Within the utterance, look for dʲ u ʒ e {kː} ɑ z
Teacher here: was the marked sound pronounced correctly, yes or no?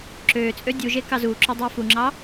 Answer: no